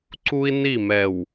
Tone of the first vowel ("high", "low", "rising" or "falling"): high